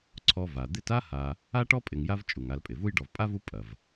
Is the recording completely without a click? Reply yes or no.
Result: no